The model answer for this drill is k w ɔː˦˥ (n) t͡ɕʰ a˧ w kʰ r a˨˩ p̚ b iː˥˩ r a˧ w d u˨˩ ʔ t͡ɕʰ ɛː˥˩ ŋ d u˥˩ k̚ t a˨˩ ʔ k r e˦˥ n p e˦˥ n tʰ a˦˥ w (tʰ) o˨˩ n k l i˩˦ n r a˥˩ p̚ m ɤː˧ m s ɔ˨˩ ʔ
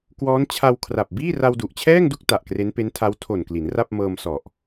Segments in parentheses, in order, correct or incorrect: correct, correct

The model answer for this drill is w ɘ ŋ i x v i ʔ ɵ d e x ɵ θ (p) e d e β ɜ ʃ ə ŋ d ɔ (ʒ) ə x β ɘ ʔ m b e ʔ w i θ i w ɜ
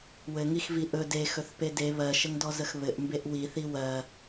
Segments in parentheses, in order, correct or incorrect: correct, incorrect: z

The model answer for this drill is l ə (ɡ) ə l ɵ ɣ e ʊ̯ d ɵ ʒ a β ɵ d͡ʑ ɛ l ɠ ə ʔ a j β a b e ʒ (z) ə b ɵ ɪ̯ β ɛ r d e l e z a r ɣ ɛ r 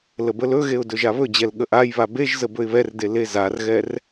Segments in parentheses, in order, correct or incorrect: incorrect: b, correct

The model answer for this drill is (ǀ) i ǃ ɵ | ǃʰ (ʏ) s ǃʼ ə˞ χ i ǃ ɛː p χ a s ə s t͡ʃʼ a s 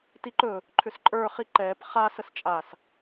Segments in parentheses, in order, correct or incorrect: incorrect: t, correct

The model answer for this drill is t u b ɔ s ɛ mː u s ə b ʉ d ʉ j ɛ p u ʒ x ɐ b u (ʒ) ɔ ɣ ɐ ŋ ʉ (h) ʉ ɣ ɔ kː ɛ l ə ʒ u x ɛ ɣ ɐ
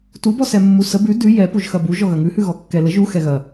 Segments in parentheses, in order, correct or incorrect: correct, correct

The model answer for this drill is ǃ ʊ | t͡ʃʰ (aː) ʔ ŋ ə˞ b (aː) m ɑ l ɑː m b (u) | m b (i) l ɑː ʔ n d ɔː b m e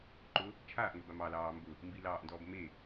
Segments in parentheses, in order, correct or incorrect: correct, incorrect: a, incorrect: ʊ, correct

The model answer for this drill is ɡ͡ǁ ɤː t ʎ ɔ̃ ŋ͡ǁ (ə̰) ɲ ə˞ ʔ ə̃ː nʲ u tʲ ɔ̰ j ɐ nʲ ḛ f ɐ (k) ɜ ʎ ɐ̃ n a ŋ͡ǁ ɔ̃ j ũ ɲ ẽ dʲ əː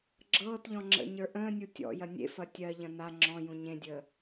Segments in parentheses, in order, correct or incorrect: correct, incorrect: tʲ

